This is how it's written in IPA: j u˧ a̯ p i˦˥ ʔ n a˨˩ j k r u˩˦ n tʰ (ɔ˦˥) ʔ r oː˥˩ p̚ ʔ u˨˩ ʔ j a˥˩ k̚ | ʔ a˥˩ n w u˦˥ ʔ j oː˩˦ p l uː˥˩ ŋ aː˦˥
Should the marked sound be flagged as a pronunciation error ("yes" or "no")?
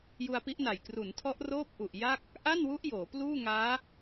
no